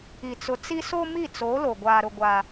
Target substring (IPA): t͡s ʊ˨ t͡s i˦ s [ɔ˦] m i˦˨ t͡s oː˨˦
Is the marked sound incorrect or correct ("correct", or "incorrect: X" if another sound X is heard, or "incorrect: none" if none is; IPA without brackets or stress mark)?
incorrect: o˦